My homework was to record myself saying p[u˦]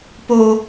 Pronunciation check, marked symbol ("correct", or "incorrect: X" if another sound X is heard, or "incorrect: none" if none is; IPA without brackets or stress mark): incorrect: o˦